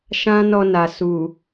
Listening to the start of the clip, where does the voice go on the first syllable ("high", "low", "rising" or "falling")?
high